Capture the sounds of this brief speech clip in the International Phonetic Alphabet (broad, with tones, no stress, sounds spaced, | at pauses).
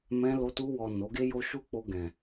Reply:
m ɛ̃˧ l o˧ t u˧ w ɔ˨ n o˨˦ ɡ e˦ j o˦ ʃ u˦ k͡p o˧ ɡ ɛ̃˨